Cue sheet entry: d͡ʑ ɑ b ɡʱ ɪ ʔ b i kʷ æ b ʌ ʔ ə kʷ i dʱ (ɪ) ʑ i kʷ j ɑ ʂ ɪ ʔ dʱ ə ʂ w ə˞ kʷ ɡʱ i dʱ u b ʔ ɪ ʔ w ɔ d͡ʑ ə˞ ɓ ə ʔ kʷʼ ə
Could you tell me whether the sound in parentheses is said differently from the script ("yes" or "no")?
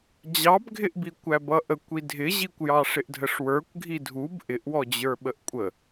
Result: no